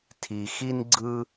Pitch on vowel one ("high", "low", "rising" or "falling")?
low